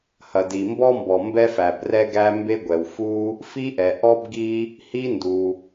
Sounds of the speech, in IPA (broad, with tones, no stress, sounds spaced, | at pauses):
h ɐ˩ d i˩ m b ɔ˥ m b ɔ˩ m b ɛ˥ f æ˩ b r ɛ˥ ɡ æ˥ m b e˥ ɡʷ ɛ˩ w f u˥ | f i˥ ʔ ɛ˩ ʔ ɔ˥ b ɡ i˥ | h i˥ n d u˩